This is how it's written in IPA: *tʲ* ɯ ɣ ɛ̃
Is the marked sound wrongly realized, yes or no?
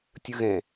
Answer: no